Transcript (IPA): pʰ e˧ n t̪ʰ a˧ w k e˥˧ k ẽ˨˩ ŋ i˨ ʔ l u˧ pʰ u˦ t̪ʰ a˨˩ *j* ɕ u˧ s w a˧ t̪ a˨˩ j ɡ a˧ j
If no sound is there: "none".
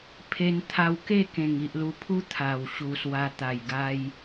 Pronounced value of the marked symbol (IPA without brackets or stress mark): w